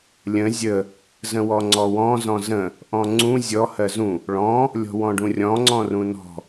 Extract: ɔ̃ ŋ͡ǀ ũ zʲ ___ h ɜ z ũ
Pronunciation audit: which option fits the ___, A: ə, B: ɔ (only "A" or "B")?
B